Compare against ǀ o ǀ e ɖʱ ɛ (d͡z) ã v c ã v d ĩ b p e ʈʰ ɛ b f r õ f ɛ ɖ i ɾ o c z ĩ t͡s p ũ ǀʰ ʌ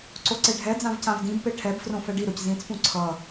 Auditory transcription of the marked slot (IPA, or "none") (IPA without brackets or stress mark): d͡z